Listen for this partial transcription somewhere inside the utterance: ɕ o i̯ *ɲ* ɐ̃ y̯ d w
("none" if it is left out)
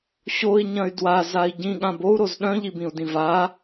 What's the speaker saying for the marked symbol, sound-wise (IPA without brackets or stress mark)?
ɲ